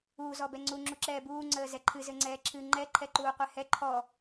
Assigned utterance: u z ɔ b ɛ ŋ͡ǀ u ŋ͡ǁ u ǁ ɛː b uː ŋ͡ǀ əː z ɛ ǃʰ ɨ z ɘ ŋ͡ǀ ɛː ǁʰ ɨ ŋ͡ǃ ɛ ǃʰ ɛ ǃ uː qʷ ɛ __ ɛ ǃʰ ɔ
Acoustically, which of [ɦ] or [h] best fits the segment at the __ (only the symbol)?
h